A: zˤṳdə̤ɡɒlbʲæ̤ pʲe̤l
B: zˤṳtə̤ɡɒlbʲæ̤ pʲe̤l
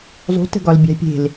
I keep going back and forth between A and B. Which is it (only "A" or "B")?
B